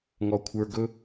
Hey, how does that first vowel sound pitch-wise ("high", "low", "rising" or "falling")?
low